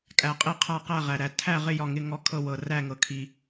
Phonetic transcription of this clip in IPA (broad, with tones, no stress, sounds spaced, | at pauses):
kʼ æ˩ qʼ i˧˩ qʰ a˧˩ q æ˧˩ ʁ æ˩ ɾ æ˩ tʰ æ˧˩ ʁ ɪ˧˩ j ɒ˧˩ ŋ ɪ˧˩ ŋ ɔ˧˩ kʰ ɤ˧˩ w ɤ˩ r æ˧˩ ŋ ɤ˩ kʰ i˩